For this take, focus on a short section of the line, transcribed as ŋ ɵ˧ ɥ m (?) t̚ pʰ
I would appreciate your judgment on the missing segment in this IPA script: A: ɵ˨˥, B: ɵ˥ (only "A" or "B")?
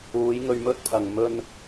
B